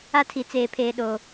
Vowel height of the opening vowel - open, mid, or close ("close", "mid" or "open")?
open